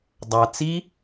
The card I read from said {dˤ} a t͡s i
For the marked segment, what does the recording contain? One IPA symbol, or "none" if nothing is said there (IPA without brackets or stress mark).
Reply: dˤ